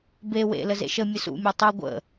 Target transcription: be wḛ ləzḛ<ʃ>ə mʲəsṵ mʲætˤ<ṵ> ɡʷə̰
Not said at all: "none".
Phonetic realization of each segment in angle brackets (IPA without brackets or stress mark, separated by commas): ʃ, u